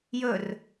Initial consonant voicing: voiced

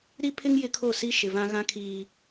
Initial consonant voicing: voiced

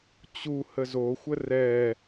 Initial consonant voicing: voiceless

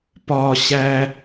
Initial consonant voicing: voiceless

